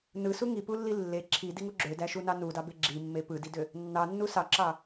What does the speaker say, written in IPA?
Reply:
n ɯ s u ŋ i p u lː i lː e ǁʰ i d i ŋ u ɡ͡ǁ ø d æ ʃ u n ɑ n u d ɑ b e ɡ͡ǁ i mː e p ɯ d i d ø | nː ɑ nː u s ɑ ǁ ɑ

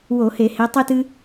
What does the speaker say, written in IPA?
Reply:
w o˧˩˧ h e˧˩˧ h e˨˦ tˤ ɨ˦ t ɨ˦

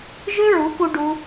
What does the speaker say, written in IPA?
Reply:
ʒ ø˦ ɹ u˨˦ k u˧ ɖ u˧

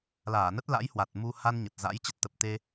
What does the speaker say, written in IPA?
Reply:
l aː˧˩ n ə˦˥ t̚ l a̰˧˥ j h w a˨˩ t̚ m u˧ h a˧ n ɲ ə˨˩ t̚ z a̰˧˥ j t͡ɕ ə˦˥ t̚ t̪ ə˨˩ p̚ t̪ e˧

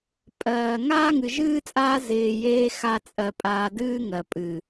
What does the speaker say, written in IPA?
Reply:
pʼ ɜː˨ ŋ aː˦ ŋ ɨ˨ ʒ ɨː˦ t͡sʼ aː˦ z ɪː˧ j eː˦ x a˦ t͡sʼ ɜ˧ pʼ aː˧ d ɨː˦ ŋ ɜ˨ pʼ ɨ˨

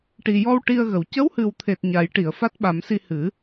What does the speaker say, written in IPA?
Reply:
ʈ i˨˩ j ɔ˧ w ʈ i˧ ə̯ ɣ ə˨˩ w c ə˧˥ w h ɨ˨˩ w t̪ʰ e˨˩ t̚ ɲ a˨˩˦ j ʈ i˨˩˨ ə̯ f a˦˥ t̚ ɓ a˨˩˦ m s i˧ h ɨ˨˩˦

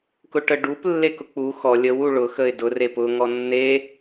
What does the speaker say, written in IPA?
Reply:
k ʊ ʈ ə ɖ u p lː e k ʊ k͡p u x ɔ lʲ ə w u ɭ ʊ x ə ɪ̯ d ʊ r e p ʊ ŋ ɔ nː e

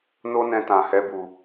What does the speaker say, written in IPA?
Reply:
n o˦ n ɛ̃˧ t ã˨ h ɛ˧ b u˨

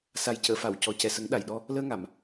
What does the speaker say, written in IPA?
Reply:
s a˨˩ j c əː˨˩˨ f a˨˩˨ w c ɔ˨˩ c ɛ˨˩ s ə˨˩˦ ŋ ɗ a˨˩ j ɗ ɔ˧ | l əː˧ ŋ a˨˩˨ m

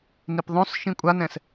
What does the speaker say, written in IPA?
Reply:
n i p ðˤ õ s ʃ ĩ kʷʼ a n ɛ̃ s

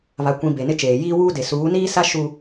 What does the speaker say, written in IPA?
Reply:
β a˨ kʷ ĩ˨ b e˨ n ɪ˦ t͡ʃ eː˨ j iː˦ w uː˦ d e˨ s uː˨˦ n iː˦ s a˦ ʃ u˦

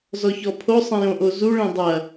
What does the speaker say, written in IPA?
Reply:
z ɔ ç ɔ pʰ o sˤ ẽ j õ ʔ o z u ɭ ẽ dˤ ɐ

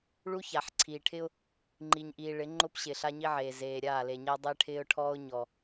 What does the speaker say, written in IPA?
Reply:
ɭ u˦ ç a˨ ħ ǀʰ iː˨ ʈʰ ɪ˦ ʊ̯ | ŋ͡ǃ i˨ ɲ ʔ iː˨ ɭ ɪ˨˦ ŋ͡ǃ ʊ˦ p ɕ ɪ˨ ɬ a˦ ɲ i˦ ʕ eː˨ z eː˨ ɾʲ aː˦˨ l e˨ ɲ a˦ dˤ e˦ ʈʰ ɪː˦ ʊ̯ ʈʰ ɔː˦ ʊ̯ ɲ ɔ˨

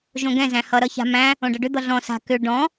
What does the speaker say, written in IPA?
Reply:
ʒ õ ɡ ɛ̃ z æ̃ h ʌ ɾ ʌ ç a̤ m æ̃ | õ ɖ ʌ ɖ ʏ d̪ ʌ ɮ ɔ̃ s a̤ k ʏ ɖ ɔ̃

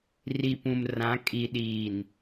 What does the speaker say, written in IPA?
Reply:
r i˨ p ũ˨ m r ã˨˦ kʼ i˨ ɗ iː˨ n

